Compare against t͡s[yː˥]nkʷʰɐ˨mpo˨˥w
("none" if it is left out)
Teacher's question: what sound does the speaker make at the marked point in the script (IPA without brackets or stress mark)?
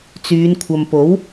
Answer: yː˨˧